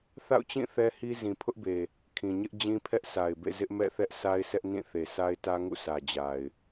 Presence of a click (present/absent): absent